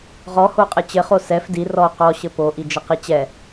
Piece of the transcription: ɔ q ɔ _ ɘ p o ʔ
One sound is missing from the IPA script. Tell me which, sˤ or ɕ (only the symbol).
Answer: ɕ